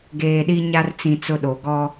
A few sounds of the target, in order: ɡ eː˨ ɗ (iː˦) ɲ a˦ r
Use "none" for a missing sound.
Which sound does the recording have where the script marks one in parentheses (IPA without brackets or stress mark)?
i˦